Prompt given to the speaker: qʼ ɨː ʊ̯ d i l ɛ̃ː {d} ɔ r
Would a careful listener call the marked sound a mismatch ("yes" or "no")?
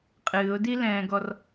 yes